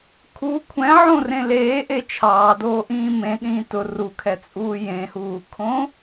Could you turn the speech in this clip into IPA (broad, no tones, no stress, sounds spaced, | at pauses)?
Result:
kʰ u kʷʰ ɛ̃ ʕ õ r ẽ l eː ʔ e t͡ʃʰ ɑː d oː ʔ ĩː m ẽ ɗ ĩː t ʊ r u kʰ ɛ t͡sʼ uː j ẽ h uː kʰ õ